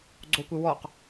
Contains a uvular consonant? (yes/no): yes